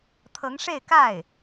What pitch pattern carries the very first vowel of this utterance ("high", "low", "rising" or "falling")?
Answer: rising